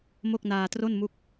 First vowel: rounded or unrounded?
rounded